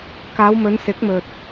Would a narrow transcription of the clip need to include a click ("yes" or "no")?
no